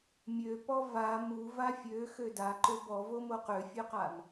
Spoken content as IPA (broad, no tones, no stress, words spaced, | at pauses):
mʲøpɔ va mu vafʲø xøda ǃøbɔvomo qøfʲøqam